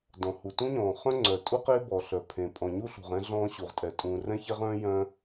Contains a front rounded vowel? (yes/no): yes